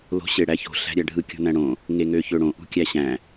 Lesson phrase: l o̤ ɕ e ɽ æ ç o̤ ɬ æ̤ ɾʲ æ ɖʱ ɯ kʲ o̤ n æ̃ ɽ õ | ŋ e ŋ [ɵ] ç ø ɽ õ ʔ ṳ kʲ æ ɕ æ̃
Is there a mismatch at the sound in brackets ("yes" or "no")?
yes